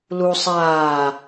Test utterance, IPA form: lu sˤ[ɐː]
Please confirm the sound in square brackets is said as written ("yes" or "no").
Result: no